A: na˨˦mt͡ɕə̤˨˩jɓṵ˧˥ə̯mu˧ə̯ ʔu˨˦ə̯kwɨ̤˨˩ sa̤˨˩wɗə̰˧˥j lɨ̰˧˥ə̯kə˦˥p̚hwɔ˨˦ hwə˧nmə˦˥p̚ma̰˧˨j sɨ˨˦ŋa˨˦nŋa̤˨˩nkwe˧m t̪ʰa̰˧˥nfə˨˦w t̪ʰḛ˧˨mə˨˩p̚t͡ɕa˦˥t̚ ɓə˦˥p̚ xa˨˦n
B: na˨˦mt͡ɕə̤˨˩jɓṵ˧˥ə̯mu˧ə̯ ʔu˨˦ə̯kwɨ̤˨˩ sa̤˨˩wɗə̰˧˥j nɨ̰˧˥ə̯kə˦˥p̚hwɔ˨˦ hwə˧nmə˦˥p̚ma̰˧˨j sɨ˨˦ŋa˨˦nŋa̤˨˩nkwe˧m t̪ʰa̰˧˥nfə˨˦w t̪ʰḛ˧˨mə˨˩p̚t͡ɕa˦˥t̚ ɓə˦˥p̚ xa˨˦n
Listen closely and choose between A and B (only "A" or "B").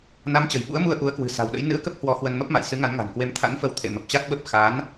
B